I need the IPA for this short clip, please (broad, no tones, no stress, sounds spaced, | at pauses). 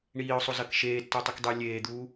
ɳ iː ʊ̯ sˤ o z ɐ k ʃ eː tː o tˤ ɨ k dˤ ɨː lʲ eː d̪ uː